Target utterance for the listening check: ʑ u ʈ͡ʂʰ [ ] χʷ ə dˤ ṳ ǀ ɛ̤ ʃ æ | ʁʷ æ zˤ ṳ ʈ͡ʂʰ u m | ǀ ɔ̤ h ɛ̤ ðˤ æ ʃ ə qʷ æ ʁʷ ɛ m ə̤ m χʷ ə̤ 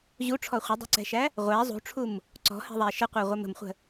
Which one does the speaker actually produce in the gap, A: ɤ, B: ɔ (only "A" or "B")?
B